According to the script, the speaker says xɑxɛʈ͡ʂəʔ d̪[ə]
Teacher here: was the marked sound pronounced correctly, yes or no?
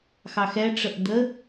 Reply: yes